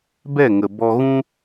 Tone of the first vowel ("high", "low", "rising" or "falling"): falling